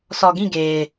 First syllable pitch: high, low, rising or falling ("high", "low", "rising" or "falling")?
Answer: low